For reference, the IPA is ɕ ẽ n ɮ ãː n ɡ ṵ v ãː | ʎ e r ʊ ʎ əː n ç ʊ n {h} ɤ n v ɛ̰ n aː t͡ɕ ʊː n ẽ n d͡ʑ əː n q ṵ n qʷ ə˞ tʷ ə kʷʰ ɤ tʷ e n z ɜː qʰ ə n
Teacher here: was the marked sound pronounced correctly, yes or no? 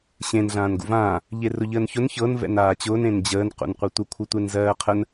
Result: no